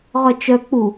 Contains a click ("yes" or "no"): no